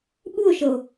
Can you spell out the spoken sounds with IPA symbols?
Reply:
ɓ u o̯ ʃ ɤ o̯

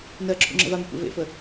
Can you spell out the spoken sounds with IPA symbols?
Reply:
n ɜ ǁʰ ṵ ŋ͡ǁ ə̰ v a m u kʷ ḛ v ḛ f ə

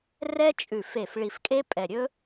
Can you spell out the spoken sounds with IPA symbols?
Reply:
r ɛ˥ t͡ʃʼ ʉ˧˩ f e˧˩ f ɭ i˧˩ f kʼ e˥ pʼ ɛ˧˩ ɾʲ ɵ˥

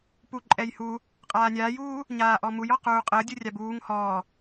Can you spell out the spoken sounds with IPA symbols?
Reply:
p u ǃʼ ɛ j h u | qʼ aː nʲ aː j uː | ɲ aː ʔ ɔ m u j ɔ q uː qʼ əː dʲ u rʲ a b uː ŋ h ɔː

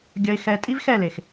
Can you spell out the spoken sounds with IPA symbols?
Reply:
ɡʲ ʌ˨ ɪ̯ x ɛ˨ tʼ i˦ v x ɛ˦˨ l e˨ x

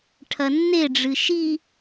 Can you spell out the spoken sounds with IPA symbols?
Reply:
ʈʰ ɐ nː e ɖ͡ʐ ɨ ʃ i

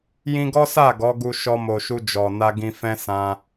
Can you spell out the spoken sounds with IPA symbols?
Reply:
j ĩ˧ ɡ ɔ˦ s a˦˨ ɡ ɔ˨˦ ɡ u˧ ʃ ɔ˧ m o˨ ʃ u˧ d͡ʒ ɔ˨ n a˧ ɡ ĩ˧ f ɛ̃˦ s ã˧

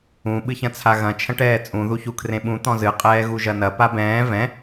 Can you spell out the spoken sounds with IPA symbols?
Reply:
ũ ɓ ɨ ç ɐ̃ t͡sʰ a ɣ ɐ̃ t͡ʃʰ ɐ̃ ʈ ɛː t͡sʼ ũ ð u ç u kʰ r ẽ ɓ ũ t̪ ɔ̃ z ɨ qʼ ɛː ɣ u ʒ ɐ n ɐ p a b ɛ̃ː v ɛ̃

